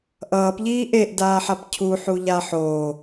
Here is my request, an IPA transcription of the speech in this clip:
ʔ ʌː p ʎ iː ʔ e ʔ d aː ħ a p cʰ u ħ u ʎ a ħ o

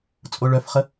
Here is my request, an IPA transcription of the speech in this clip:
t͡sʼ o ɭ œ f χ ə

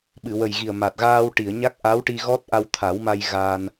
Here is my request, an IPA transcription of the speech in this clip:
ɓ ɨ˨˩˨ w ə˨˩ j ɣ i˨˩ ə̯ m a˨˩ t̚ ɣ aː˧ w ʈ i˨˩˨ ə̯ ɲ a˦˥ k̚ ʔ a˧˥ w ʈ i˧ ɣ ɔ˦˥ t̚ ʔ a˧ w t̪ʰ a˨˩˦ w m a˧ j ɣ aː˧ n

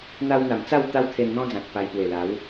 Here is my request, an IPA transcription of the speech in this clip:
n̪ a˧ w n̪ a˨˩ m t͡s a˥˧ w t̪ a˦ w t̪ʰ e˧ n n̪ ɔ̃˦ d͡z ã˨ t̚ p a˧ j p w e˨˩ l a˨˦ w

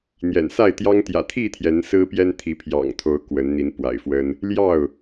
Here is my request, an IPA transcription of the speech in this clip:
n̪ j ɛ̰˨˩ n s a˥˨ ɪ̯ t̪ j ɑ˦ ŋ t̪ j ä̰˨˩ t̪ʰ i˥˨ t̪ʰ j ɛ˨˦ n s ɹ̩˦ p j ɛ˦ n t̪ʰ i˨˦ pʰ j ɑ̰˨˩ ŋ t̪ʰ o˨˦ ʊ̯ k w ə˨˦ n n̪ i˨˦ n p w a̰˨˩ ɪ̯ f w ə˦ n | l j ɑ˥˨ ʊ̯

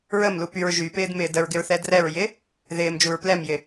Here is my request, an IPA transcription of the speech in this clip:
ɹ ə m l u p y ɹ ʒ y p ɪː d m ɪː d ə ɹ ɡ ɪ ɹ θ ɛ d r ɛ ɹ j ɪ | ð ɪː m d͡ʒ u ɹ p l ɛ m j ɪ

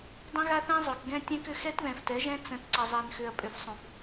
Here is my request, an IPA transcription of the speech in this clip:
dˤ ə̃˦ ɣ a˦ θ ɛ̃˦ zˤ ø˨ k ɡ ɛ̃˦ tʲ ɛ̃˦ k ʏ˦ x ɛ˦ t ð ɛ̃˨ f t ɛ˨˦ ʒ ɛ̃˦ t͡s ə̃˨˦ t ǀ ə˨ zˤ ɛ˨ n x ʏ˨ ɐ̯ pʼ ʏ˨ f sˤ ũ˨ f

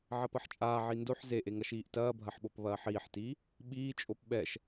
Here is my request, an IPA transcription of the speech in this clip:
ʕ ɐ p ɐ ħ t͡ʃʼ aː ʕ i n d o ħ z e ʔ e ŋ ɐ ʃ iː ʔ t ɐː bʱ ɐ ħ ɓ o p β ɐː ħ iː ħ t iː | ɓ iː t͡ʃʼ o p ɓ ɛ ʃ

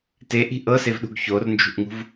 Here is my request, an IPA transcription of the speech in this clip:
t e ʔ i̤ ʔ ɤ s e v ɗ ṳ ɡ ç o r n d͡ʒ ṳ ʔ ŋ ṳ v

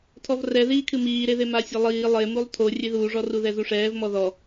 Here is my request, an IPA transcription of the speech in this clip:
tʰ ɔ v r ɛ ð iː kʰ ɨ m iː ɾ e ð e m a sʲ ɐ lˠ iː lˠ e m u lˠ tʰ o rʲ e ð uː ʐ ɔ r u ð ɛ z u ʂ ɛː v m ɔ ð ɔ

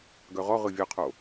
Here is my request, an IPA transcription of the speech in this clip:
ɡ œ ʁ ɔ ʁ ɯ vʲ œ qʰ o

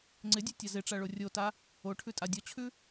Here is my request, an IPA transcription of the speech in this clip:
ŋ͡ǀ ɪ dʲ ʉ tʲ a z ɪ ʈ͡ʂ a ɭ o rʲ o t a | o ʈʰ ʉ tʼ a dʲ ɔ t͡ɕʰ ʉ

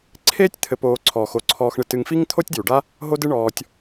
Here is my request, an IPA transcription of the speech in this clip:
ǀʰ eː˥ tʲ t̪ʰ ɘ˨ p oː˨ ǀʰ ɔ˩ x o˩ ǀʰ ɔː˨ x ɳ ɨ˨ t ɨ˨ ŋ f i˥ ŋ t̪ʰ o˥ tʲ d j u˩ ɖ a˥ | ɦ o˥ d ɨ˦ ɳ ɔː˨ tʲ

